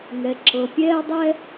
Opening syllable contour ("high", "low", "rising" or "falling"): low